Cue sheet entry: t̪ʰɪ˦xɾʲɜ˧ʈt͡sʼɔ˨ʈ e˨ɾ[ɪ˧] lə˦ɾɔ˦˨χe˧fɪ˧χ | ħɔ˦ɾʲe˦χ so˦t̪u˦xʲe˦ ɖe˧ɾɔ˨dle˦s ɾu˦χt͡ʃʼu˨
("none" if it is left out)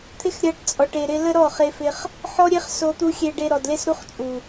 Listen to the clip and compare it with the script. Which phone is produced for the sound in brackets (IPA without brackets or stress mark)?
ɪ˧